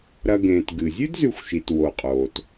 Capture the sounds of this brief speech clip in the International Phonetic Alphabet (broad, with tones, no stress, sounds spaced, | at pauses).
ɾ ɐ˨ ɡ ẽː˩ t ɡ ɨ˩ zʲ ʉ˥ d z ʉ˨ xʷ ʃ i˩ t w o˩ qʼ oː˩ t